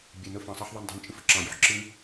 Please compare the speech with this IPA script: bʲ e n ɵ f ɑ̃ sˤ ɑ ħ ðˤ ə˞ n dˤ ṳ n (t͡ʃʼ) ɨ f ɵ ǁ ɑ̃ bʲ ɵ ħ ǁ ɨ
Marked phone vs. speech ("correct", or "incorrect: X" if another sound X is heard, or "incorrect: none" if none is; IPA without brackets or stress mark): correct